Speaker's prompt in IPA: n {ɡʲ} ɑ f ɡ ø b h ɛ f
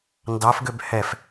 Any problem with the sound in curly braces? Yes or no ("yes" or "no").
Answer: yes